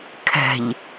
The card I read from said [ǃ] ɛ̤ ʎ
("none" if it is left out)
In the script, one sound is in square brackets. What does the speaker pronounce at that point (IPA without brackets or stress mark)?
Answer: kʰ